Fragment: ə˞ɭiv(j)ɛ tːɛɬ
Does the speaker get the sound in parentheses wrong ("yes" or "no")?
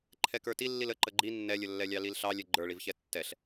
yes